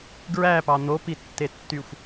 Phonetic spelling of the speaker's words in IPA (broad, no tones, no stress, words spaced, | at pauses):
ɡɹæpɑ n̪opitːetːyxʷ